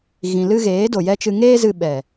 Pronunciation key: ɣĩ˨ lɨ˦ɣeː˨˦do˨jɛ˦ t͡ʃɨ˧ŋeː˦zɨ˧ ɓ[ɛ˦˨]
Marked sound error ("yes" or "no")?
yes